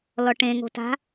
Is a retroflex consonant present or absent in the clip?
present